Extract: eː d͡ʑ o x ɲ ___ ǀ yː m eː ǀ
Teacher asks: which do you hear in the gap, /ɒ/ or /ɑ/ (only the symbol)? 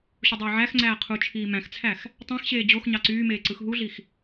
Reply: ɑ